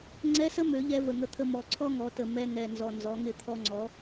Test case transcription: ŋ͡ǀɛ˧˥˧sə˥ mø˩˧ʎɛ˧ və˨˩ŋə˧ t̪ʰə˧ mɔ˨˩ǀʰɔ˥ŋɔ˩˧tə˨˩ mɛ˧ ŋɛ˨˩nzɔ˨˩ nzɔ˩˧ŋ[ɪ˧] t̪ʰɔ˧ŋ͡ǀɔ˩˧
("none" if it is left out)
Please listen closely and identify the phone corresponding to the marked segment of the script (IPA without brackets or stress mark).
ɪ˧